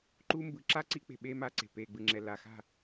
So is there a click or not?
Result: yes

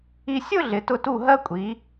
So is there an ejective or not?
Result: yes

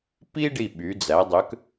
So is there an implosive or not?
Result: yes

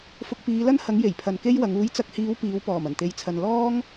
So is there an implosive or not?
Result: no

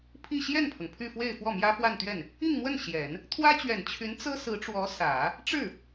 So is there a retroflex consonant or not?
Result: yes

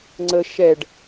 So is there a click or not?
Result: yes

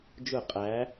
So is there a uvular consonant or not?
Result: yes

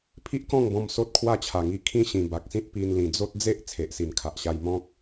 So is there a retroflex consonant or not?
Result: no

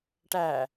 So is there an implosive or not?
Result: no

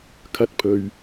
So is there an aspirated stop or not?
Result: yes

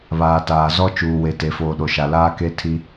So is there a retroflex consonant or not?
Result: no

